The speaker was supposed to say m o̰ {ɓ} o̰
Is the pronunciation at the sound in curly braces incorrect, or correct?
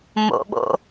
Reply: correct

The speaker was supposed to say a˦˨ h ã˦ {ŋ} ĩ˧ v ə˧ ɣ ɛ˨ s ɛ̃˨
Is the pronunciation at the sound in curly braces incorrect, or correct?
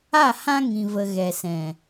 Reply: correct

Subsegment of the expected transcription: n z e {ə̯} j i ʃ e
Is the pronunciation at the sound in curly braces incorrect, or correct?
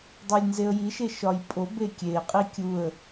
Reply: correct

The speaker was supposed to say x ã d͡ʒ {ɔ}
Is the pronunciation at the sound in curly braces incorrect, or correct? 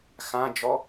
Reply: correct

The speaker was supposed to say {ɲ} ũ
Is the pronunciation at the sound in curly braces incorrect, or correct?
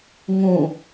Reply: incorrect: ŋ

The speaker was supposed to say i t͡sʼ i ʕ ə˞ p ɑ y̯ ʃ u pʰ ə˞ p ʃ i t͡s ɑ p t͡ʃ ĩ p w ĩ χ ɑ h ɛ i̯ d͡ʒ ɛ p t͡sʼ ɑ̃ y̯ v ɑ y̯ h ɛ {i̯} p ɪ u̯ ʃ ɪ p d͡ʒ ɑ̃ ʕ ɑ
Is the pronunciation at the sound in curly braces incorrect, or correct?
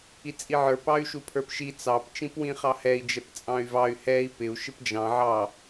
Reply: correct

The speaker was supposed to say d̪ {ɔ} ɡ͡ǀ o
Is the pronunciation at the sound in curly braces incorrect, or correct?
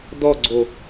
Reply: correct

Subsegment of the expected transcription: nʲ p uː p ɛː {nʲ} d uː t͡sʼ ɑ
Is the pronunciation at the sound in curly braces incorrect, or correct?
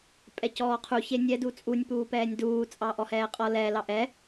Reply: correct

